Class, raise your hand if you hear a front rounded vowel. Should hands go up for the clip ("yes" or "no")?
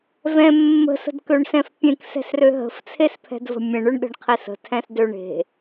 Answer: yes